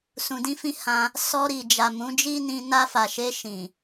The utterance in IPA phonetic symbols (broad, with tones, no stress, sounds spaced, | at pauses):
s ũ˨ d ĩ˧ f ĩ˧ h ã˧ | s ɔ˧ ɾ i˨ d͡ʒ a˨ m ũ˨˦ d͡ʒ i˦ n ĩ˧ n a˧ f a˨ ʃ e˧ ʃ ĩ˨